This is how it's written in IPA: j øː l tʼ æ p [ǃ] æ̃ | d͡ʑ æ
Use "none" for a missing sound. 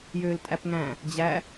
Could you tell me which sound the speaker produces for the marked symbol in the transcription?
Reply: ŋ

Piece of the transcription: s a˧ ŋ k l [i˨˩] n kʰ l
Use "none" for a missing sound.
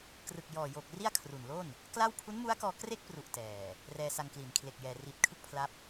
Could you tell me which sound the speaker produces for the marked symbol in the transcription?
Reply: i˩˦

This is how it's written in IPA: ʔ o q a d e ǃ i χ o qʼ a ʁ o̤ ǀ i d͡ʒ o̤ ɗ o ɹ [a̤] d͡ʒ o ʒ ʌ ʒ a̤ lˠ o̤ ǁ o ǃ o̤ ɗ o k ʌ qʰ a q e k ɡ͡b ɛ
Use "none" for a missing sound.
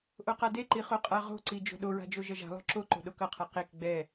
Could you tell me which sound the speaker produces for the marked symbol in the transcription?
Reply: a̤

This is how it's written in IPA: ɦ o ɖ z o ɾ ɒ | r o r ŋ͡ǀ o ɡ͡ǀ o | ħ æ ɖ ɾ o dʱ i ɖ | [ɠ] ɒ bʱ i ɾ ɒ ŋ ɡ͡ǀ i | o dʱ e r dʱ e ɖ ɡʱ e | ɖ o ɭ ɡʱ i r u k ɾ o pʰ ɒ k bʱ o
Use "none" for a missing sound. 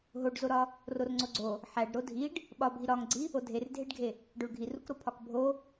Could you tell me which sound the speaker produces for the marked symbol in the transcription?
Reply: ɓ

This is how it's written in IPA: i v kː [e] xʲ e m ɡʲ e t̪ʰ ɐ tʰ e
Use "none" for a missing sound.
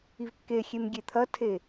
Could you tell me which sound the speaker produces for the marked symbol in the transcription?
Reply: e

